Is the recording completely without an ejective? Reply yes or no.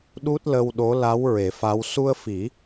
yes